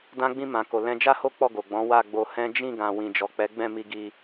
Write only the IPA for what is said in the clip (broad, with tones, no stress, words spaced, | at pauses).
dã˧ɡ͡bĩ˧ mã˨ko˨ lɛ̃˧d͡ʒa˦ho˦ k͡pɔ˦˨ɡo˨ɡ͡bɔ̃˨˦ wa˦˨ɡ͡bo˧hɛ̃˦ d͡ʒĩ˦˨ɡã˨ wĩ˨d͡ʒɔ˨k͡pɛ˨˦ɡ͡bɛ̃˦˨ mi˧ɡi˧